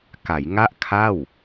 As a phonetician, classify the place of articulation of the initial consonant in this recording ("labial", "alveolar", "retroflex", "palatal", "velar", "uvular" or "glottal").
velar